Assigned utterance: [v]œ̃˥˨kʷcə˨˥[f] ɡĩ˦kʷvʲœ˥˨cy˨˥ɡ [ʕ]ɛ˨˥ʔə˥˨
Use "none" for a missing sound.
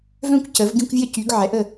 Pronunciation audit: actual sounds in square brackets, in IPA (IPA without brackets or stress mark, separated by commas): v, v, ʕ